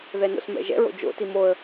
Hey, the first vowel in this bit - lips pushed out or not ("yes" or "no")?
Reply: no